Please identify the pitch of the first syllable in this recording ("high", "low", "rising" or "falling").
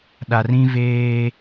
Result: low